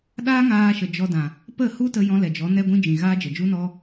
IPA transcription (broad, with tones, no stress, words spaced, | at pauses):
ɗaː˦ŋaː˧ʃə˨ d͡ʒɔ˧dã˨ | pə˦˨hu˦ tə˧jɔ̃˧ lɛ˨d͡ʒɔ˨˦ nɛ˦ɡʷĩ˦d͡ʒĩ˨ ɣaː˦d͡ʒə˨d͡ʒu˦nɔ˦